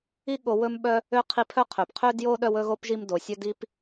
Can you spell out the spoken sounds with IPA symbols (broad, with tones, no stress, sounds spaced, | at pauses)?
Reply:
i˦ ɠ o˨ w ɵ˦ m ɓ œ˦ | ø˥ qʰ i˦ pʰ œ˥ qʰ ø˩ p qʰ ø˦ d j o˦ ɗ œ˦ w ɵ˥ ɣ o˥ p ʒ i˦ m d o˩ sʲ ɵ˥ d i˥ p